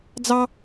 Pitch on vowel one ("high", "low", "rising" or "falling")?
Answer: high